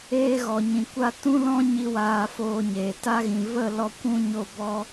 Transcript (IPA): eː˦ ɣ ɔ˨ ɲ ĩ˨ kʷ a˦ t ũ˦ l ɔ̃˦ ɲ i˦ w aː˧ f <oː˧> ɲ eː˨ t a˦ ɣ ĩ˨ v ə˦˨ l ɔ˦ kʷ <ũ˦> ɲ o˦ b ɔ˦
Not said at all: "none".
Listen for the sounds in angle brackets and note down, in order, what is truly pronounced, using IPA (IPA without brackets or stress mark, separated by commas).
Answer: oː˧, ũ˦